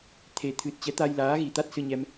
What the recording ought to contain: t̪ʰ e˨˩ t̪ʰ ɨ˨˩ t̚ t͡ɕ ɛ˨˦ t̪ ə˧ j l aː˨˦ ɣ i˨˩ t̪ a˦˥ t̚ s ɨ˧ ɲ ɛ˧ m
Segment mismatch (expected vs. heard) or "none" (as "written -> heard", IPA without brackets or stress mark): ə˧ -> a˧